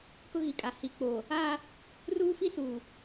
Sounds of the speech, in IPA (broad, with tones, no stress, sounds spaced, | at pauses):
k ʊ˦ ɣ i˨ kʼ a˨ h i˨ k͡p oː˨ | aː˦ | r uː˦ f i˦ s uː˨